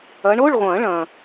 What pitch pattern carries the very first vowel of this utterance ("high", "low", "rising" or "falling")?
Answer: rising